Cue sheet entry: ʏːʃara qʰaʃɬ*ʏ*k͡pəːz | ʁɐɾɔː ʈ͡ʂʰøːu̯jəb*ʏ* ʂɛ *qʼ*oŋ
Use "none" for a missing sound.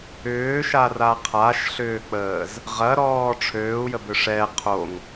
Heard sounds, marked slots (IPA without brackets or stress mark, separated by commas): ʏː, ʏ, qʰ